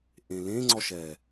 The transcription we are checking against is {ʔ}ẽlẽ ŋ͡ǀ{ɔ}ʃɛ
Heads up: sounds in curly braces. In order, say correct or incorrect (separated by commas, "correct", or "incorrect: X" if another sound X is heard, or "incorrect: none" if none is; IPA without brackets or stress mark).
correct, correct